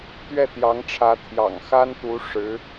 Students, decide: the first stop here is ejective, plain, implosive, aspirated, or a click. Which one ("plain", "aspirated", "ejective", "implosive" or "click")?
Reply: plain